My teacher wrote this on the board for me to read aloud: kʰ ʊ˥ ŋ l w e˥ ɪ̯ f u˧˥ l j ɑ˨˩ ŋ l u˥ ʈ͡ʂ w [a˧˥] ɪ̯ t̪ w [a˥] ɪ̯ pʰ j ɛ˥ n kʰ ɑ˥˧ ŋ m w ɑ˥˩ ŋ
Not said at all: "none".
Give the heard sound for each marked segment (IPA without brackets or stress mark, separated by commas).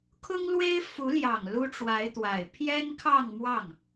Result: a˧˥, a˨˩